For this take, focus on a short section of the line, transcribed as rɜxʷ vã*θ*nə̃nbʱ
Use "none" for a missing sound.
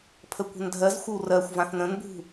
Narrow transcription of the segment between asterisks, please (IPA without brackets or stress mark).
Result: θ